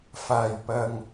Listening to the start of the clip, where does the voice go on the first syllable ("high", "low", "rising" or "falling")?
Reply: low